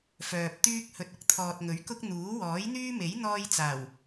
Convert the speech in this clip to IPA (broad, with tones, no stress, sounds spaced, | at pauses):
f œː˨ p̚ t̪ yː˥ k̚ h ɵ˨ t̚ ʊ˨ k̚ t̪ʰ ɔː˨ t̚ ŋ ɵ˨˥ ɥ k ʊ˥ k̚ n̪ uː˨˥ w ɔː˨˥ j n̪ yː˥ m e˨˥ j n̪ ɔː˥ j t͡s aː˨˩ w